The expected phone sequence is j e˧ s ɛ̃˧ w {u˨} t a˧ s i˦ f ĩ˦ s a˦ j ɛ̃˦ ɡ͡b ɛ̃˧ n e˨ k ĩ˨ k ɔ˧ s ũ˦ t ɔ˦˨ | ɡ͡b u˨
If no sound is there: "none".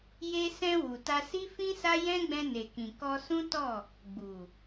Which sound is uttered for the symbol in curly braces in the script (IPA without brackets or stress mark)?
u˨